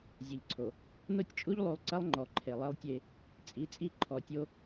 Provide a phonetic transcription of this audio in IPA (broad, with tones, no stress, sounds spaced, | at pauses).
zʲ ɐ˨ ʎ ǀʰ o˨ | n o˦ tʲ t͡ʃʼ u˦ ʎ lˠ u˨ lˠ ǀ ɐ˦ lˠ ŋ͡ǃ ɔ˨ ǃʰ e˨ lˠ e˦ lˠ tʲ e˦ | t͡sʼ i˨˦ t͡sʼ i˦˨ ǃʰ ɔ˨ tʲ o˦